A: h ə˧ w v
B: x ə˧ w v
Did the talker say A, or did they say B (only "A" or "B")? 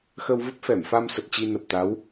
B